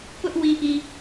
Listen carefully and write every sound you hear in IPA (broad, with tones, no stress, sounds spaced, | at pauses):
p ʊ˦ ʔ w i˨ ʔ i˨